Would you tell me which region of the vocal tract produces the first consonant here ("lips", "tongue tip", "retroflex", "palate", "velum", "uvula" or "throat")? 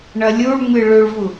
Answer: retroflex